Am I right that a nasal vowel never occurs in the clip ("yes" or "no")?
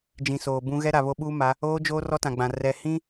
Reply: no